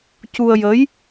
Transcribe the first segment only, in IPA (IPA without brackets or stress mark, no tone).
c